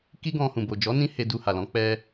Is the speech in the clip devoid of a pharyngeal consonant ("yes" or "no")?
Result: yes